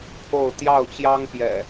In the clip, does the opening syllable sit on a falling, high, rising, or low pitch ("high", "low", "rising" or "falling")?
falling